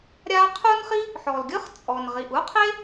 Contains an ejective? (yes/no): yes